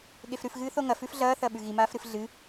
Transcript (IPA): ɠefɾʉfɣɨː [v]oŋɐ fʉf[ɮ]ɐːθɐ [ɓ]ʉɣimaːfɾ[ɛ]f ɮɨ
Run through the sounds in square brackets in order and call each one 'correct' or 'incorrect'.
incorrect: θ, correct, correct, incorrect: ɨ

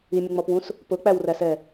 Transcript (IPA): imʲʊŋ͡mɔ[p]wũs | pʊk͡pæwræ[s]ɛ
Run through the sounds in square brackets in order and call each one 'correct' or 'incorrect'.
correct, correct

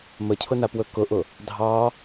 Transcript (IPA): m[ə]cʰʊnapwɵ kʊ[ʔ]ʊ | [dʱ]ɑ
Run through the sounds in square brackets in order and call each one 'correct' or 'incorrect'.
correct, correct, correct

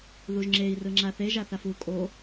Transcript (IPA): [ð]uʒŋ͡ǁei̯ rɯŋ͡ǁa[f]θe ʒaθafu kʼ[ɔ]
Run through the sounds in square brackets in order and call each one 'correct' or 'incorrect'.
correct, incorrect: none, incorrect: o

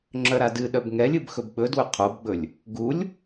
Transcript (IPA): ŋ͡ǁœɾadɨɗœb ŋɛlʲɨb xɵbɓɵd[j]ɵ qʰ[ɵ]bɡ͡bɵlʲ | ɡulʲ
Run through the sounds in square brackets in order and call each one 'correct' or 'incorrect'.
incorrect: w, incorrect: o

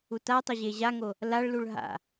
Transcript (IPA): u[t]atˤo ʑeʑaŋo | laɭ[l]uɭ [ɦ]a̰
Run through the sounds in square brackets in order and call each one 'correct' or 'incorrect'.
correct, correct, correct

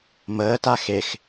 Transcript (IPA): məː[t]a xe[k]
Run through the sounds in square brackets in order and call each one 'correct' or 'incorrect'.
correct, incorrect: x

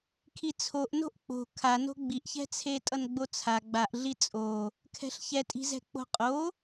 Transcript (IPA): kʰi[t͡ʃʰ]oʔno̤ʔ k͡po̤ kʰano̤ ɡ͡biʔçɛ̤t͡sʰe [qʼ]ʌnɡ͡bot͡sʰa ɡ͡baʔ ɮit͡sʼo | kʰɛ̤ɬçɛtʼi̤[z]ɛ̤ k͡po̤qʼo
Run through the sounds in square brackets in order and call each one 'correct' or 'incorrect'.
incorrect: t͡sʰ, incorrect: tʼ, correct

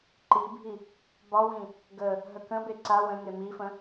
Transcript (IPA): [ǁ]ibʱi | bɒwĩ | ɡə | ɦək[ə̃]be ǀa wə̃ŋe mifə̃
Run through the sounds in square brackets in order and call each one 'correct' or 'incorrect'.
incorrect: ǃ, correct

